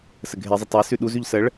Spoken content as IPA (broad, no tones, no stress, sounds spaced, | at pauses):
s ə ɡʱ e zˤ ə tˤ e s ʉ ɗ u z ʉ ʎ s ə ɭ